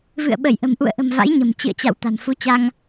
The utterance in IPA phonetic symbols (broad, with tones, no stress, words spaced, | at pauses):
vɨ̰˧˨ə̯ ɓə˧˩jʔə̤˨˩mʔṵ˧˨ə̯ʔə̤˨˩m va̰˧˥jɲə̤˨˩m t͡ɕɨ̰˧˨ə̯t͡ɕa̰˧˨w t̪a̤˨˩nfu˨˦t͡ɕa˧ŋ